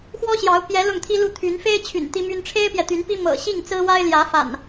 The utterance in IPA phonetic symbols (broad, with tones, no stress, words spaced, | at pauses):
xwɔ˦ɕjɑ˨˦ʊ̯ pjɛ˨˦ lʊ˥˨ŋt̪ʰi˦lu˥˨t̪ʰy˨˦n fe˦ɪ̯t͡ɕʰy̰˨˩n t̪i˦my˦n ʈ͡ʂʰe˦ɪ̯pjɛ˨t̪y˨˦npi˦ mɤ̰˨˩ɕi˥˨ŋt͡sɹ̩˦wa˦ɪ̯ ljä˨˦fa̰˨˩n